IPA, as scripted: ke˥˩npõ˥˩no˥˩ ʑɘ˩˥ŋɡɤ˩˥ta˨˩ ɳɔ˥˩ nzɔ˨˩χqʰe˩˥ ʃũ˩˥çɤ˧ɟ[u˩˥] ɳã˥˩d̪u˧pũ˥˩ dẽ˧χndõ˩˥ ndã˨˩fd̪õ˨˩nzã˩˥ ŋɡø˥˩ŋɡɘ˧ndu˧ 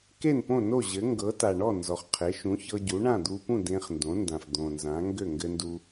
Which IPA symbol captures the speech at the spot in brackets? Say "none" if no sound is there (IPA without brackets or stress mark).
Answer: u˩˥